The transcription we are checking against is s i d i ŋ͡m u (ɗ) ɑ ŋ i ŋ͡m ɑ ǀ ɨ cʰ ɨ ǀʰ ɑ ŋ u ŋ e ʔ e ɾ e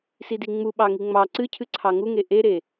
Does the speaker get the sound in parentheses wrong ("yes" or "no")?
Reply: yes